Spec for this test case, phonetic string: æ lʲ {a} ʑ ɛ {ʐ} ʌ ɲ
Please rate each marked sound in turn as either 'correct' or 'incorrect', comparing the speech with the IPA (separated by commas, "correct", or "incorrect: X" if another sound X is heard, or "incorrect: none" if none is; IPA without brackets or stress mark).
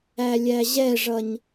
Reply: incorrect: æ, correct